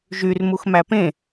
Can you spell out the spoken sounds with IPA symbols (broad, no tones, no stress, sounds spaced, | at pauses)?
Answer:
ʒ y r m u x m æ p ẽ